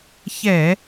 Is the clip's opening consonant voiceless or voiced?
voiceless